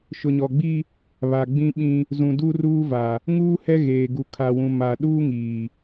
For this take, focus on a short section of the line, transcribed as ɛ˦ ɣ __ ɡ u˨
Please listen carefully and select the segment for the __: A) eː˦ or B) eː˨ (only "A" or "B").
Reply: B